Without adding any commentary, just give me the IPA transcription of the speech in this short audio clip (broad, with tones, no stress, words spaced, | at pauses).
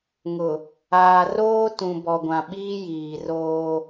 ŋʊ˨ | aː˨ roː˦tũ˨bɔ˨ɡʷã˨ ɓiː˦jiː˨roː˦